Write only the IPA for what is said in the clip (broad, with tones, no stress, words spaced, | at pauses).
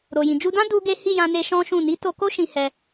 ɾo˨jĩ˨ d͡ʒu˧dã˦ du˦ɡe˦ hi˦˨jã˧ne˧ ʃɔ̃˦ʃũ˦˨ ni˨˦ to˧ko˦ ʃĩ˧hɛ˧